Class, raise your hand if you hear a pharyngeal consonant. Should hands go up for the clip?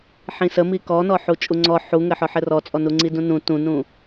yes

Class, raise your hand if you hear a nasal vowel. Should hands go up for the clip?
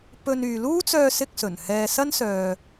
no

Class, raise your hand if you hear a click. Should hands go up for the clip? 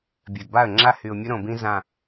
yes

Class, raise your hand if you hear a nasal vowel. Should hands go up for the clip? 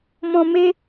yes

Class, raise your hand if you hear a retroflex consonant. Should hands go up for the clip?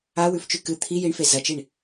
yes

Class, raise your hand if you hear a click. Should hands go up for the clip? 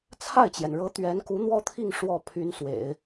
no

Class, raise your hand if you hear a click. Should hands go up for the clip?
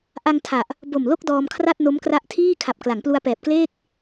no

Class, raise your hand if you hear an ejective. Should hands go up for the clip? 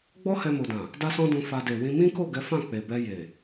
no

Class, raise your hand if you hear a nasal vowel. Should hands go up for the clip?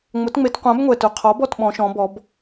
yes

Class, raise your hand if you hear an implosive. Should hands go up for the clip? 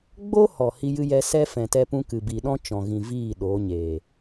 yes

